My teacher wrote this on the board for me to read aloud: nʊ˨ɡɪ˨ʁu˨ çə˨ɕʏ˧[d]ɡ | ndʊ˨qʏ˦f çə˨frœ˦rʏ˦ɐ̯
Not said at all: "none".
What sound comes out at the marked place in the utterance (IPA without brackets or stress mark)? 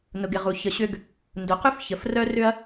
none